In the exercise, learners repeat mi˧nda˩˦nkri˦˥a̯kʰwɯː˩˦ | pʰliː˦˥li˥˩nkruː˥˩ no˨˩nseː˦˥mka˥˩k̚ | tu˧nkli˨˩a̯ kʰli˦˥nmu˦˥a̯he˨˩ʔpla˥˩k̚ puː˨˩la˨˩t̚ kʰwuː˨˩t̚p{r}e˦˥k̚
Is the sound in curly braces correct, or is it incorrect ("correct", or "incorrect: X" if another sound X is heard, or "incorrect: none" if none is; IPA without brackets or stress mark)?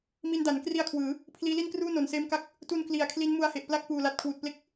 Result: incorrect: l